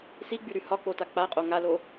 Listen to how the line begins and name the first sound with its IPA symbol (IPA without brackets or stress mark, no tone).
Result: s